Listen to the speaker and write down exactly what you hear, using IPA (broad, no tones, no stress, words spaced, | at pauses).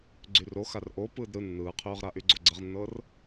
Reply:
ɡ͡ǀyroxar ʔo pɯːdɾɯ nːɯːqʰyːʁɾaʔy ɡ͡ǀoɡ͡ǀəʁnːɤːr